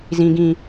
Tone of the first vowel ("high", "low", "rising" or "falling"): high